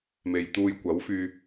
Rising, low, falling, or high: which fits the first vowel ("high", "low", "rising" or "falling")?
low